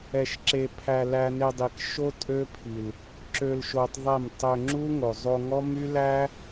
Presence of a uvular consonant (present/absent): absent